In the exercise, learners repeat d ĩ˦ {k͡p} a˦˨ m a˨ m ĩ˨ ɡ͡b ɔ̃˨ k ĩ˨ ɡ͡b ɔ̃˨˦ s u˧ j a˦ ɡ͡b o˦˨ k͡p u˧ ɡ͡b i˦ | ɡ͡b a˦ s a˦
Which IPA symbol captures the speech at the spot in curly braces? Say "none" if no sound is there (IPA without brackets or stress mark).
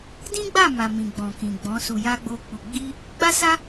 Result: ɡ͡b